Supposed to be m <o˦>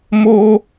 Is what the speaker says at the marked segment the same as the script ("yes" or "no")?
yes